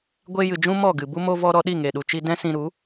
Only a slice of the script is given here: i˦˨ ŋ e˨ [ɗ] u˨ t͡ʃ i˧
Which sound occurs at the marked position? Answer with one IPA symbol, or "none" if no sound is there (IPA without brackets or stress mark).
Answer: ɗ